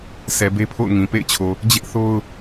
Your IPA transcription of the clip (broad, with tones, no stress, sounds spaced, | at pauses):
sʰ ɛ˨ b e˦ pʰ o̰˦˨ ʊ̯ ŋ ĩ˨ p ḛ˦˨ ɪ̯ t͡ɕʰ o˨ | d͡ʑ ɪ˦ ʔ θ o˦ ʊ̯